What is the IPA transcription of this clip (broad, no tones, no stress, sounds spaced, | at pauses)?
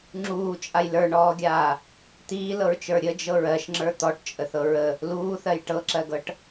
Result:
ŋ͡ǁ uː t͡ʃʼ a j l ə˞ ɳ ɔː ɡʲ aː | t̪ iː l ɤ ɹ t͡ʃ ə˞ ɾʲ ə d͡ʒ ɤ ɹ ɜ ʃ ŋ͡ǁ ə˞ t̪ ɔ ʈ t͡ʃʼ ə θ ɤ ɹ ə | l uː θ ɜ j ʈ ɤ ǁ ɜ ɡ ɤ ʈ